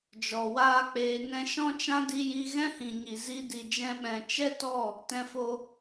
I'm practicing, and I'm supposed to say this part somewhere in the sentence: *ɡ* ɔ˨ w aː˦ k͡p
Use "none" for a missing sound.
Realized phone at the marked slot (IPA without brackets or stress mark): d͡ʒ